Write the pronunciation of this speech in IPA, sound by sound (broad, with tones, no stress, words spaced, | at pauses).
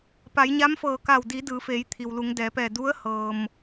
pa˩˧jɲa˧˥mfɤː˧˩ka˧˩w di˩˧ dɯː˩˧feː˩˧jt̪ʰi˩w lu˩˧ŋdɛː˩˧pɛː˧˩ du˧˥ə̯hɤː˩m